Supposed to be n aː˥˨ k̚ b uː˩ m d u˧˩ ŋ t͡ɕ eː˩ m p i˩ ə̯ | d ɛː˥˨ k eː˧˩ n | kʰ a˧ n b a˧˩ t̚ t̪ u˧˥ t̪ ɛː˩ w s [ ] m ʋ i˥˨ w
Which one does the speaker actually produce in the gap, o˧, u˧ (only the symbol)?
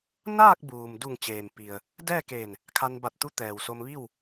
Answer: o˧